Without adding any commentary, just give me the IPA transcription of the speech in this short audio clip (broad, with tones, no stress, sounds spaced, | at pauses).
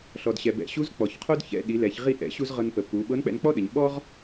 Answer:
ɬ ɔ˩ d ɕ ɛ˩ b ɛ̰˩ ɕ u˧˥ z k͡p ɔ˩ ç qʰ o˥ d ç ɛ̰˧ ɗ i˩˧ l ɛ˩˧ ç ʁ i˧ ʔ ɛ̰˩˧ ɕ u˧ z ʁ ɤ˧ n p ə˩˧ p u˩˧ ɓ ɤ˧˥ n k͡p ɛ̰˧ n k͡p ɔ˥ ɗ ə˩˧ ɲ ɓ ɔ˥ ʁ